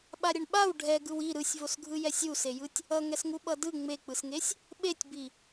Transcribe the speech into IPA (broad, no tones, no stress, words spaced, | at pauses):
ɓaɾʲʌɳɓaw ɖʱɛɡɯw i ɾɯsʲvosɡʱɯ jɛsʲusejɯtʲ | ʌŋɛsŋu ɓʌdɯ ŋ͡mek͡pɯsŋesʲ | ɓetʲbi